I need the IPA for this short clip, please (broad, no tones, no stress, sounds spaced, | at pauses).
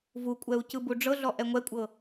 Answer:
v u kʷʼ ɛ u̯ c ɯ b u ɖ͡ʐ ɤ ɮ ɔ ʔ ɛ ŋʷ ɛ kʷʼ ɤ